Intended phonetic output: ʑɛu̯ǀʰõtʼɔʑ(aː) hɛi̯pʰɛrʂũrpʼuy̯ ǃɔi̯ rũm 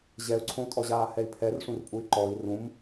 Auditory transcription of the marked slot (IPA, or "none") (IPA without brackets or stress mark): aː